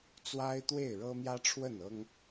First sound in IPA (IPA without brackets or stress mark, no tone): t͡s